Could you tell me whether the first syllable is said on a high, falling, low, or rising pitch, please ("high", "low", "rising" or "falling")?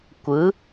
rising